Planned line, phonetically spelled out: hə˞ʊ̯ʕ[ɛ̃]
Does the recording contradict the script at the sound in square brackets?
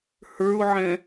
no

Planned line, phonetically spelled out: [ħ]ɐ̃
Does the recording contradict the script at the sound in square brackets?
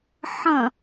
no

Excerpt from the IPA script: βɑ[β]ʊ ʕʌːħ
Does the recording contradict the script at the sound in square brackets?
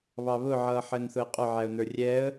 no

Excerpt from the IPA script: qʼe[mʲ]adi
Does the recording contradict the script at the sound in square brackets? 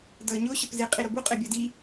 yes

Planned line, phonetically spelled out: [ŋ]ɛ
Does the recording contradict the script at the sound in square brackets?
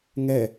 no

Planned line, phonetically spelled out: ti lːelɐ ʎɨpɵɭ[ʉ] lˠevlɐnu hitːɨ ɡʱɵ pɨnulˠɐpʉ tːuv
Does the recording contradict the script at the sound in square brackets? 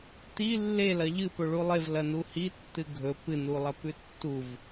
yes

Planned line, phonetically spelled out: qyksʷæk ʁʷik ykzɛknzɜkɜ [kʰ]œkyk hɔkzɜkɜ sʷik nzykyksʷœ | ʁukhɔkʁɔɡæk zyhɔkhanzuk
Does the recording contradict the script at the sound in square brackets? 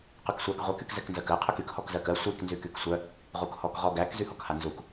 yes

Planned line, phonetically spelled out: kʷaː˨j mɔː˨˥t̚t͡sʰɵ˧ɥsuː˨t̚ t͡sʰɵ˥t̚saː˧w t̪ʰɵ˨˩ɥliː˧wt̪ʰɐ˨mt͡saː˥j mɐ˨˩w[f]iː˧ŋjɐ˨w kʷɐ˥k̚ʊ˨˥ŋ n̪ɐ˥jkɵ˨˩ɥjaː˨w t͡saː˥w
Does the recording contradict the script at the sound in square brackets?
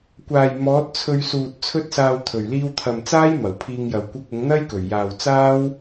yes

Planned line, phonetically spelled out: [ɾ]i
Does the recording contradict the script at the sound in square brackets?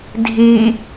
yes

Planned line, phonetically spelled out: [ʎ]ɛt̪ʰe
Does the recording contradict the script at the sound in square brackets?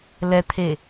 yes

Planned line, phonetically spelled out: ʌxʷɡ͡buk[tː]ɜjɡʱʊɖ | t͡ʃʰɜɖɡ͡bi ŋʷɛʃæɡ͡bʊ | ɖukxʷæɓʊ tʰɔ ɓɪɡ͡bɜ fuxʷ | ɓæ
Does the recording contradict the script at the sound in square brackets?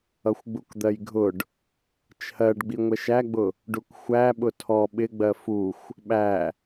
yes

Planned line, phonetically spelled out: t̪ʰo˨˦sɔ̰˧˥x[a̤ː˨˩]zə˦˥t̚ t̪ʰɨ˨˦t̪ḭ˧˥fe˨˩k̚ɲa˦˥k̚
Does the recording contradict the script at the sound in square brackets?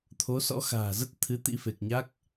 no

